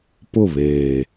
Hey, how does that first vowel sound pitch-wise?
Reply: falling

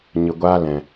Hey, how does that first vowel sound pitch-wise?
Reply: low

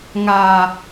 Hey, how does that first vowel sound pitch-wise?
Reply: low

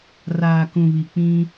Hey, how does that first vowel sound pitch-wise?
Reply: low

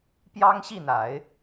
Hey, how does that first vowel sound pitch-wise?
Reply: high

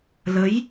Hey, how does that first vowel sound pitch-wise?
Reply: rising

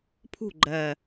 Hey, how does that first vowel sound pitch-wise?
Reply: falling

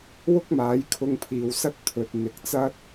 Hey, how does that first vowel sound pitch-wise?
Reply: high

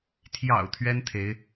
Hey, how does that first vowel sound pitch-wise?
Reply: low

